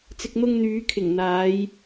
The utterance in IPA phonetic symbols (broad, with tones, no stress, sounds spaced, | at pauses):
t͡s ɪ˨ k̚ n̪ ʊ˧ ŋ n̪ yː˨˧ kʰ ɪ˨˩ ŋ n̪ aː˨˧ j